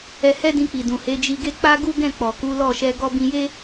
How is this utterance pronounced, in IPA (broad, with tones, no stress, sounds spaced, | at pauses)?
ɛ˧ h ɛ˦ d ĩ˧ k͡p i˨ d ũ˨ h e˨˦ d͡ʒ i˧ ɡ e˦ k͡p a˦ ɡ u˦ ɡ ɛ̃˦˨ k͡p ɔ˨ k u˨˦ l ɔ˦˨ ʃ ɛ˧ ɡ ɔ˧ b ĩ˧ j e˦